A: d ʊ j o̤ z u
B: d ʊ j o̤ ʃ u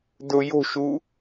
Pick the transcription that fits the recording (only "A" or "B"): B